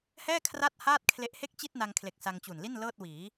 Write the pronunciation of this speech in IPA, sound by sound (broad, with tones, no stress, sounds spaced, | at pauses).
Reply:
h ɛː˥˩ kʰ r a˥˩ t̚ h aː˥˩ t̚ kʰ l e˦˥ ʔ h e˥˩ k̚ t͡ɕ i˥˩ t̚ n a˧ ŋ kʰ l e˨˩ k̚ s a˧ ŋ t͡ɕ u˨˩ n l i˥˩ n l ɤː˥˩ t̚ w iː˩˦